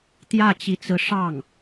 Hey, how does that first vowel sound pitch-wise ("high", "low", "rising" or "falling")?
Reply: falling